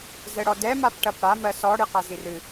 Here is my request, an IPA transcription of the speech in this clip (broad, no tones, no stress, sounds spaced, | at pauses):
z ɛ ɽ ɔ d ɛ m a p ʈ ɐ p ɽ a m ɜ s ɔ ɽ ɨ q a z i r ɨ